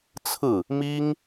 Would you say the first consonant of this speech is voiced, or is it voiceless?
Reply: voiceless